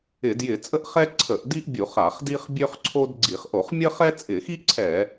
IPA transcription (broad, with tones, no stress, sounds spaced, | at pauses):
ɪ˧˩˧ d j ɪ˧˩˧ t͡sʼ ə˥ ʔ χ ɛ˥ ǀʰ ə˧˩˧ ʔ d i˥ ʔ bʲ u˧˩˧ χ a˧˩˧ χ d i˥ χ bʲ ø˥ χ ǀʰ o˥ d ɡ͡ǀ i˧˩˧ χ ʔ o˧˩˧ χ mʲ ə˥ χ ɛ˥ t͡sʼ ɪ˧˩˧ x i˥ ǀʰ ɛ˧˩˧